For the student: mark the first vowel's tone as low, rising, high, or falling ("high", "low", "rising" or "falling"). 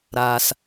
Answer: low